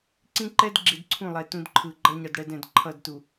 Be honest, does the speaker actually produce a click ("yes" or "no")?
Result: yes